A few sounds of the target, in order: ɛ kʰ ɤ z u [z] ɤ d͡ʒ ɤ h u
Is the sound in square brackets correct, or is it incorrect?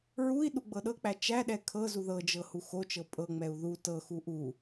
incorrect